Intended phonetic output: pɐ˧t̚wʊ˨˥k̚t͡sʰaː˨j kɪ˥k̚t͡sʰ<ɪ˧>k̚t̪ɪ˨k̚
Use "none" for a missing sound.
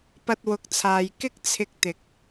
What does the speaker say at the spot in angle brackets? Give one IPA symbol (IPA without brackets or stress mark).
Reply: ɪ˧